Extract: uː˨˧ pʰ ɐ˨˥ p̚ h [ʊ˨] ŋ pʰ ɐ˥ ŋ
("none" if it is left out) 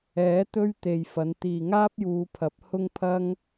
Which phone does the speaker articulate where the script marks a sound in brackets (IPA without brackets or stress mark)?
ʊ˥